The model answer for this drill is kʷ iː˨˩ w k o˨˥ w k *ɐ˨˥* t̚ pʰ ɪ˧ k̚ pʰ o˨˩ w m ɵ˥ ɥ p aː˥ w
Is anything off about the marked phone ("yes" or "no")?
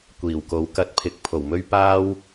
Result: yes